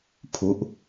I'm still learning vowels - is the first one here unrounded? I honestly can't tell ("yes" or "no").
no